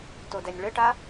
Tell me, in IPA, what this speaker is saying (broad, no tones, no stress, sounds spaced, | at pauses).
t o d ɛ nʲ ɭ ɘ ʈ a